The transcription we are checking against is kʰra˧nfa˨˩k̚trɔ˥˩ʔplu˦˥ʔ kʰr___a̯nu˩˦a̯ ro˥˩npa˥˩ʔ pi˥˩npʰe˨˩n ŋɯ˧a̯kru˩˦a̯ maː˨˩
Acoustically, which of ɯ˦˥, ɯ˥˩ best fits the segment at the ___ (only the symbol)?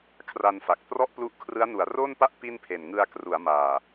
ɯ˦˥